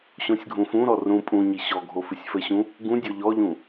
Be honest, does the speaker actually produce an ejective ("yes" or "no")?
yes